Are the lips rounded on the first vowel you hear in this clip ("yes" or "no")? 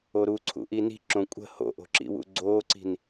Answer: yes